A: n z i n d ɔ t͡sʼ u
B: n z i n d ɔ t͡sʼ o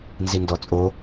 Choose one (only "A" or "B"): B